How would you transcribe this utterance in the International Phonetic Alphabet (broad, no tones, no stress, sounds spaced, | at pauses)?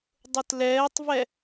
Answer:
dˤ ʊ t l ɛː tˤ v ɛ